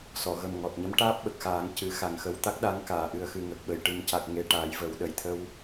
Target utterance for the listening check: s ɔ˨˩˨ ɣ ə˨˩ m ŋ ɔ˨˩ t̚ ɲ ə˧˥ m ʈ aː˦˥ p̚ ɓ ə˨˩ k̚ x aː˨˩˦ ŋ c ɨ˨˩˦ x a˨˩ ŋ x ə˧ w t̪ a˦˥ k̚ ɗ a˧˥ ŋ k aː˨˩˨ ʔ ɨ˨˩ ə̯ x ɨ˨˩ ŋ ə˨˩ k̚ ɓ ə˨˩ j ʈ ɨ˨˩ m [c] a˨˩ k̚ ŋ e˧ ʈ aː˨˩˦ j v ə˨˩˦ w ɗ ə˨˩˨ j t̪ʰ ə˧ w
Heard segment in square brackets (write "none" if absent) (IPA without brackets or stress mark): c